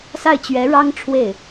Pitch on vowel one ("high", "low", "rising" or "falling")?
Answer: falling